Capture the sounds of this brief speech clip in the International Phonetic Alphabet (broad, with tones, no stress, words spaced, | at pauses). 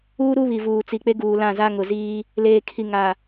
uː˦ ɾu˦βi˨ vuː˨t͡si˨k͡pe˦ ɡuː˨lã˦˨ za˦ŋʊ˨ziː˦ | leː˨kʰi˨ ŋa˨